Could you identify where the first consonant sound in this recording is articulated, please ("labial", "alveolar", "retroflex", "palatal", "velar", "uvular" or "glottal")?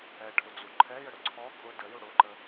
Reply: retroflex